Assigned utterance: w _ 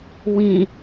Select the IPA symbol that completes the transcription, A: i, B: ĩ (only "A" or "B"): B